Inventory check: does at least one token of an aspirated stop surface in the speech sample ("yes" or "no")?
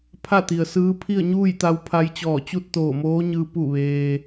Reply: yes